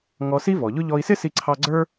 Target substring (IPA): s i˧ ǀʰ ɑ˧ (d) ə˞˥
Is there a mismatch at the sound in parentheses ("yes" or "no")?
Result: yes